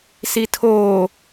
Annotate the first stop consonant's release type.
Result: aspirated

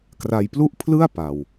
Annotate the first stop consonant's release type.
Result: plain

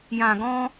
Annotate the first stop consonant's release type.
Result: plain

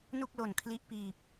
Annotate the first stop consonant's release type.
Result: plain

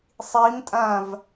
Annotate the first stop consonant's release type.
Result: ejective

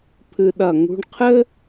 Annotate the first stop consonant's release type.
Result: aspirated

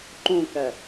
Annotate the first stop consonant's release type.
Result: click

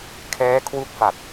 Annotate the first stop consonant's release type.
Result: aspirated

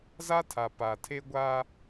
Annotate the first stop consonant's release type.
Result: aspirated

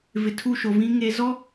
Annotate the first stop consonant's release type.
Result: aspirated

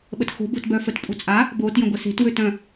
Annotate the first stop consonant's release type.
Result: implosive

